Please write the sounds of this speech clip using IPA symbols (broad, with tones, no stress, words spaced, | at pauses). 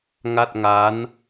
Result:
ŋa˥˩t̚ŋa˦˥n